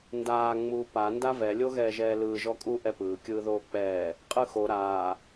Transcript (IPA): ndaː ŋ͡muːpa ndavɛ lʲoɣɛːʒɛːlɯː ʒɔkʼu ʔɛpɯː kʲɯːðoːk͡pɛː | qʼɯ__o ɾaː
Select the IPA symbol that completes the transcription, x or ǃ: x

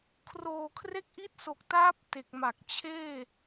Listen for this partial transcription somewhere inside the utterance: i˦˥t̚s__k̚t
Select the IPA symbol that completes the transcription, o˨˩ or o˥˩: o˨˩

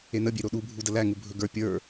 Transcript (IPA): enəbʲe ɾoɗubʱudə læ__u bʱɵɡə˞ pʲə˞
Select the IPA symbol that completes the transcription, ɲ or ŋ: ŋ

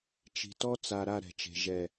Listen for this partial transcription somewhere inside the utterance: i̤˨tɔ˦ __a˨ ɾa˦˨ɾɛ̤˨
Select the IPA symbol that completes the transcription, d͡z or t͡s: t͡s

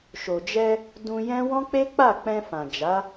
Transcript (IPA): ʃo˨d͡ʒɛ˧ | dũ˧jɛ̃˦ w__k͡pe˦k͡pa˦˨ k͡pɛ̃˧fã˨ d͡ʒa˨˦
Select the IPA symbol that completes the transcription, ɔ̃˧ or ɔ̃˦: ɔ̃˦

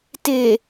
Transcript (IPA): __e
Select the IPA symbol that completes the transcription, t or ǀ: t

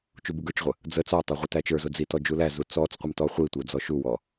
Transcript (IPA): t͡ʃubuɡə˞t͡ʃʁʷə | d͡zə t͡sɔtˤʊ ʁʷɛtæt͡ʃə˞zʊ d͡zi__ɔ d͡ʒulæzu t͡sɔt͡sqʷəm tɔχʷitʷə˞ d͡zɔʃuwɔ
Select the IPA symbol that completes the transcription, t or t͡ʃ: t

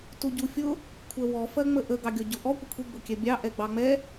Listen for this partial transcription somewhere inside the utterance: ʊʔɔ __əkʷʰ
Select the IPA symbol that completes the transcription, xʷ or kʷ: kʷ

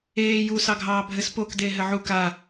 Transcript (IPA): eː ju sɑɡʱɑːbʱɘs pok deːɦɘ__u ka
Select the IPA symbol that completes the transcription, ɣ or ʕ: ʕ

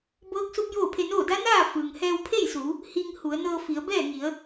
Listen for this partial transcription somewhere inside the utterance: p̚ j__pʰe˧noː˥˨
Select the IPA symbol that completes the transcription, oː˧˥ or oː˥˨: oː˥˨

